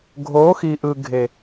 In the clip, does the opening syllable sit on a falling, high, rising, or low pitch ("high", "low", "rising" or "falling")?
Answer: rising